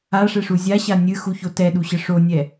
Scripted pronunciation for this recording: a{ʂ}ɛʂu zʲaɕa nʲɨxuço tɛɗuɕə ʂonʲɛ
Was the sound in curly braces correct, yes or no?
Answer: yes